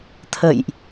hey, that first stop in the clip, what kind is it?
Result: aspirated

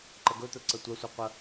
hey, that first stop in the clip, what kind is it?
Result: click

